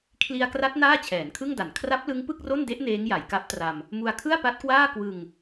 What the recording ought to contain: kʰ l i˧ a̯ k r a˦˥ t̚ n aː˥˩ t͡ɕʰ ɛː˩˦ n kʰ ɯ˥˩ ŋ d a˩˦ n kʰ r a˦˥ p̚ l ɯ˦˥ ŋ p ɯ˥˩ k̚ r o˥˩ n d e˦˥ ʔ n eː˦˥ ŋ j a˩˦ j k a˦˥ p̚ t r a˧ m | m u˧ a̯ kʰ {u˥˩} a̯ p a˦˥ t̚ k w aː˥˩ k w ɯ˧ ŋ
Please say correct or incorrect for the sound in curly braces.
incorrect